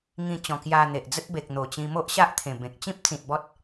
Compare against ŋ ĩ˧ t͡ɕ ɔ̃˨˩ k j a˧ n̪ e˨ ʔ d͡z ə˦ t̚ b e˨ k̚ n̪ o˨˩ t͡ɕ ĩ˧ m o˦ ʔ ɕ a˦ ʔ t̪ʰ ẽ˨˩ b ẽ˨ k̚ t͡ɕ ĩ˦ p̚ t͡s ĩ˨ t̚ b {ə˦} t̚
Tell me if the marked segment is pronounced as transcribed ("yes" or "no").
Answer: no